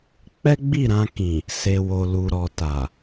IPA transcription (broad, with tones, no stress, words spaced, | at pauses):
k͡pɛ˦ɡ͡bi˦˨ɾã˧kĩ˨ | se˨wo˨ lu˨ɾɔ˨ta˨